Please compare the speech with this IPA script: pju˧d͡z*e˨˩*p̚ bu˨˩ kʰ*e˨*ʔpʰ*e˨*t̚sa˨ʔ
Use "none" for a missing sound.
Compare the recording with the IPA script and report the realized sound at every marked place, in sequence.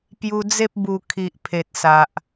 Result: e˦, i˨, e˨

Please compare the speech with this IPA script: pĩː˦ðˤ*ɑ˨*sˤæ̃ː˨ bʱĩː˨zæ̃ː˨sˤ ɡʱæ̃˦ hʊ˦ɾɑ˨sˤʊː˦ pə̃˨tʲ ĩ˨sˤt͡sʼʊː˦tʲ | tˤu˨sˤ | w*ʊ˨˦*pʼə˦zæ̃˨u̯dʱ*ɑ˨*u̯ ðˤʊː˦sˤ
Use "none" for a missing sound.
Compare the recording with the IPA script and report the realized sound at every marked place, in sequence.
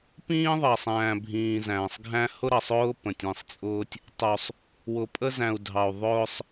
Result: ɑ˨, ʊ˨, ɑ˨

